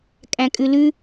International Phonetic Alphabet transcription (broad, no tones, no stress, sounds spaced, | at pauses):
kʼ æ̃ kʼ ʉ l ʉ